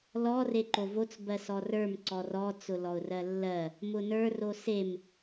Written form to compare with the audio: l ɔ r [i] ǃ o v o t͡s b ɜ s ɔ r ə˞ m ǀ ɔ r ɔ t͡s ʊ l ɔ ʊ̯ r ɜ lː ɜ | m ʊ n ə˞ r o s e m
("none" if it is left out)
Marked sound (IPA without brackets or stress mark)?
e